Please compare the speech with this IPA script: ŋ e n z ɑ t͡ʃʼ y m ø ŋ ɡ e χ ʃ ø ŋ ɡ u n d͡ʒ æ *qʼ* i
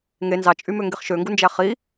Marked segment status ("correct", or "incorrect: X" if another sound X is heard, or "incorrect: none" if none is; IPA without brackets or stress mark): incorrect: χ